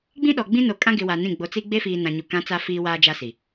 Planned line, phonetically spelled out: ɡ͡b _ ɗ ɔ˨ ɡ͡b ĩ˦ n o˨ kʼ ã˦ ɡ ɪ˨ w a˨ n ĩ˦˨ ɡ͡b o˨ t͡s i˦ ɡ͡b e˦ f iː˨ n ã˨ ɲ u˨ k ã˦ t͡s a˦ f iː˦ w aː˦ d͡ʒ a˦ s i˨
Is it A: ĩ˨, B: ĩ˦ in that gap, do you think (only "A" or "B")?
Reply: B